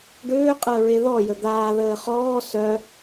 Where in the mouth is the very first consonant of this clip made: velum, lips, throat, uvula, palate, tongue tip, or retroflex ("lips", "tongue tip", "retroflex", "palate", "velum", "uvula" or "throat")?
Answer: retroflex